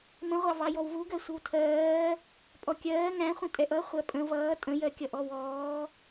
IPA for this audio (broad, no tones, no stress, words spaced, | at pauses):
mə̃ʁʷɑ vɑjɔwvuɡɜ sʷɪwtʰɜː | pʼɔkʲɜː ŋæ̃χʷə̃ tʼɛʔʌ χʷɜpʼə̃ vʌː tʼə̃jɜ kʲʌʔɔwɔː